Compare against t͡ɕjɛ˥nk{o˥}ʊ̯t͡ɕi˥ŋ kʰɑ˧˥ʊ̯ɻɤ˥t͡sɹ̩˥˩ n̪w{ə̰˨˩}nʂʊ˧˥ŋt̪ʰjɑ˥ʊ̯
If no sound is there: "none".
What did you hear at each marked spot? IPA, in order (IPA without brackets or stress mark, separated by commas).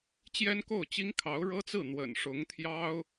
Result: o˥˩, ə̰˨˩